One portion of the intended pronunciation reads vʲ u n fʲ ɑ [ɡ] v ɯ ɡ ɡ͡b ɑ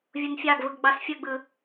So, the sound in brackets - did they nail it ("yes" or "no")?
yes